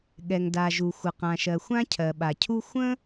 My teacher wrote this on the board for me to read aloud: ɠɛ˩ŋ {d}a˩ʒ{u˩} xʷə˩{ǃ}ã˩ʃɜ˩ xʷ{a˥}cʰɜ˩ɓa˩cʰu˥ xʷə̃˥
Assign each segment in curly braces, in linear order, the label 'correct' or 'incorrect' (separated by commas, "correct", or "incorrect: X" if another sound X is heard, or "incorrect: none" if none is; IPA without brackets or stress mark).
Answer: correct, correct, incorrect: q, incorrect: ã˥